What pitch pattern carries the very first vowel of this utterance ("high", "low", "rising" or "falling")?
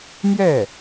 falling